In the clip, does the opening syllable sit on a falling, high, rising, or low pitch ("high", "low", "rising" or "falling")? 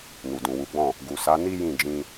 low